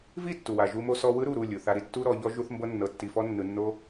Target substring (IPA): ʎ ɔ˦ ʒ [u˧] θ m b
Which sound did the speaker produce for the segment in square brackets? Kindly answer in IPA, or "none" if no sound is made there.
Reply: u˧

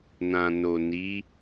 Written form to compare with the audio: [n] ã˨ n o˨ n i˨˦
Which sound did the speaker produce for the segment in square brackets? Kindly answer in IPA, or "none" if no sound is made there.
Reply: n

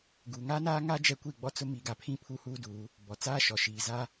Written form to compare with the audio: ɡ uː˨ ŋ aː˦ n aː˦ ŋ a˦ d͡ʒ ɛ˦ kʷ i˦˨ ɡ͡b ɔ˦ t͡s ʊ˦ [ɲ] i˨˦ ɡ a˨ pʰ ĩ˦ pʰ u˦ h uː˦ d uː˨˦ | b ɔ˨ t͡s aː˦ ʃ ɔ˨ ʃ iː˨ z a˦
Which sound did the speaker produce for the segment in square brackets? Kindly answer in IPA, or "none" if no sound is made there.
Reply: m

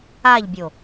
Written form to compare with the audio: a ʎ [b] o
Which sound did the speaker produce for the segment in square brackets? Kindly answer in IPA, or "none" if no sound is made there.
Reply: bʲ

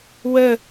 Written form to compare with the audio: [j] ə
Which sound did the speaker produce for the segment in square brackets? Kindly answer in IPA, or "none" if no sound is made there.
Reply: w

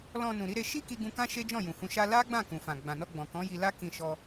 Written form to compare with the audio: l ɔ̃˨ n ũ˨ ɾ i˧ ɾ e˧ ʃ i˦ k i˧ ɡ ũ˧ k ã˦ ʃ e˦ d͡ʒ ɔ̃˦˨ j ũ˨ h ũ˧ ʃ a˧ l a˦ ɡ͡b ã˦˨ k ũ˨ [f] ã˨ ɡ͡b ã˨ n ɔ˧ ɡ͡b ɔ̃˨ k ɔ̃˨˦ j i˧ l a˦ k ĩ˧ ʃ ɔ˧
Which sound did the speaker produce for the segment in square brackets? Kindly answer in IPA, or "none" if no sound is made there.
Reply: f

